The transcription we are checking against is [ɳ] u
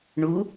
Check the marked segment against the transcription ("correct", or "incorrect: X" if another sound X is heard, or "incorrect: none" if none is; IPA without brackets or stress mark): correct